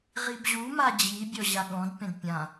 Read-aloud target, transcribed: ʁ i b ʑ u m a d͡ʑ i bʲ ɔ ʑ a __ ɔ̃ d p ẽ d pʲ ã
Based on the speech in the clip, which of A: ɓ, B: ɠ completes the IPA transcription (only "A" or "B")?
B